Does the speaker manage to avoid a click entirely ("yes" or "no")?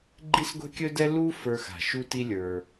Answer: no